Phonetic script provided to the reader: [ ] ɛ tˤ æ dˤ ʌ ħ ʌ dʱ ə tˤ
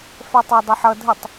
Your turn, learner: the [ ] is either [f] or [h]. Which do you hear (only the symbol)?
f